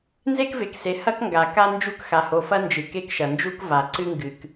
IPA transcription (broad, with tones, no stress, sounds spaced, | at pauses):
n z e˦ k v e˨ k s e˨ h ɐ˦ k ŋ ɡ a˨ k a˦ n d͡ʒ u˦˨ k x a˨ h o˨ f ɐ˦ n d͡ʒ ɨ˨ k e˦ k ʃ ɐ˨ n d͡ʒ u˦ k v a˨ ǀ ɨ˦ ŋ ɡ ɨ˨ k